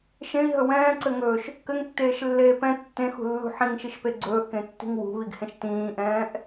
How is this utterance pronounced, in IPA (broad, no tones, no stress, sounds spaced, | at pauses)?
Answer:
ʃ ẽ i̯ ɦ ɵ w ɛ̃ː ǀ ɘ ŋ ɵː ʃ | k ɘ ŋ tː eː ʃ lː eː p ɛ̃ tː ẽ x ṳ lː ṳ ħ ĩ ŋ ʃ i ʃ p e ɡ͡ǀ ɵː ʔ k ẽ tː i̤ ŋ w ṳ β i ɡ h ẽ ʃ t ĩː ʔ ɛ̃ː ʔ